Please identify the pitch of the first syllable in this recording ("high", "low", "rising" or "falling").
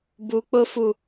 high